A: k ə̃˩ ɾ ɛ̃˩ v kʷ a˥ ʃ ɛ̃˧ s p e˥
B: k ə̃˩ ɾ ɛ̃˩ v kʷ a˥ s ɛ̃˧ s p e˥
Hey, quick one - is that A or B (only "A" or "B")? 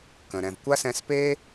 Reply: B